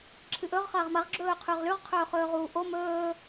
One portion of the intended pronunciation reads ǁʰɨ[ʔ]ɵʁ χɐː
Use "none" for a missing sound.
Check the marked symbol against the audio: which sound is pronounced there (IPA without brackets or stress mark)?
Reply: ʔ